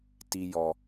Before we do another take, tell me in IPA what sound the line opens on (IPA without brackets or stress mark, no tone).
t